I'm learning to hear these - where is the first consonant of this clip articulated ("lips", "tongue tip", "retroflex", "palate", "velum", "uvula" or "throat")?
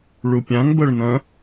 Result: retroflex